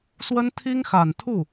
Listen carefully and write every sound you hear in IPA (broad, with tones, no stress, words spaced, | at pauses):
swə˥n t̪ʰi˥ŋxa˨˩nt̪ʰu˥˩